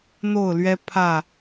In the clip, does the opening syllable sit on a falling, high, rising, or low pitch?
falling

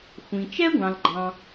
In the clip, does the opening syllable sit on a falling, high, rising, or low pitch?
low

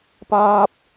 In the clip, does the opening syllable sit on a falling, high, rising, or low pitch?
high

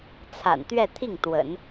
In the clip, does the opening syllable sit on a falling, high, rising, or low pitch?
low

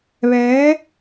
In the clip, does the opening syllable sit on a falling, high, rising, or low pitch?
rising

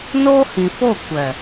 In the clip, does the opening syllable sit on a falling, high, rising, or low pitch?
high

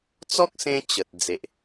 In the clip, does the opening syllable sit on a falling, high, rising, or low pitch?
high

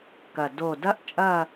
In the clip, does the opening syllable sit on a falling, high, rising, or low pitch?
low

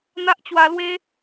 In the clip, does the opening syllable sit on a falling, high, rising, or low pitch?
high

